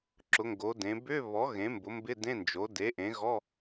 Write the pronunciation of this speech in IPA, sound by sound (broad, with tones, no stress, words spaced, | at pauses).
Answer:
ǁʊ˩˥ŋɡo˩˥dẽ˩˥ bʏ˧˥˧βɔ˩˥ ɣẽ˩˥mbʊ˩˥mbɪ˧˥˧ dẽ˧˥˧nd͡ʒo˩˥ de˩˥ ʔẽ˩˥ɣɔ˧˥˧